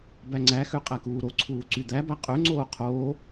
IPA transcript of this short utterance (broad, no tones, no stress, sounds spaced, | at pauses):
b æ ŋ͡ǀ æ x ø qʼ æ k uː ɾ o ǀʰ uː ǀ y d̪ æ b æ qʼ ø ŋ͡ǀ oː qʰ oː